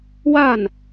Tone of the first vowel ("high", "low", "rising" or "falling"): falling